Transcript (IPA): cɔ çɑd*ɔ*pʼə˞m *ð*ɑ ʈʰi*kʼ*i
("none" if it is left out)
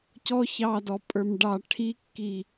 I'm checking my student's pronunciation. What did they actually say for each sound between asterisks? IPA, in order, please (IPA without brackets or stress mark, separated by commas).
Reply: ɔ, ɖ, kː